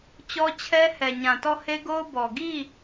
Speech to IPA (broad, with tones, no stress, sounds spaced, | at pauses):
t͡ɕ ɔ˦ t͡ɕʰ ɛ˦ h ɛ˨ ɲ ã˨ t ɔ˦˨ h e˦ ɡ o˦ ʊ̯ b ɔ˨ ɡ i˦˨